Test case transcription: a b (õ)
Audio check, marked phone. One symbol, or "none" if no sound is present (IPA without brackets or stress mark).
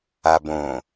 õ